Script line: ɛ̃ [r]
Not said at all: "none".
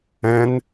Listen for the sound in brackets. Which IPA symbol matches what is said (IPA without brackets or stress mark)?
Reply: n